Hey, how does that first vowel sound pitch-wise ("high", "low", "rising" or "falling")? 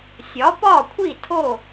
rising